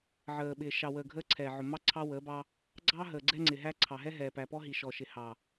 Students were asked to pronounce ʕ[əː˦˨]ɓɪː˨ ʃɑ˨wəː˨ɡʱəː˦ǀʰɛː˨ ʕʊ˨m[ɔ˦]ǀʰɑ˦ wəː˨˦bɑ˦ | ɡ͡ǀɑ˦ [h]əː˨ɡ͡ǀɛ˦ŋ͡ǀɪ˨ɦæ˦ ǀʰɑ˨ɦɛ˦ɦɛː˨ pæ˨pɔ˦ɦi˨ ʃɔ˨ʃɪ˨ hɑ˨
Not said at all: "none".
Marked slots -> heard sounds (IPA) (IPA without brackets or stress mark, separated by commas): əː˨, ɑ˦, ɦ